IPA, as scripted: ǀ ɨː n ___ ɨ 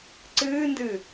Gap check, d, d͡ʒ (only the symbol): d